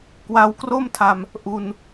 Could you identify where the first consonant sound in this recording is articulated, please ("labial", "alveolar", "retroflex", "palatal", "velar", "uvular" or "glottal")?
velar